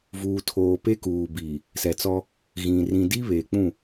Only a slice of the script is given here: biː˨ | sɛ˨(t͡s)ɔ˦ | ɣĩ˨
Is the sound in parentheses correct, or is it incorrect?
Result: correct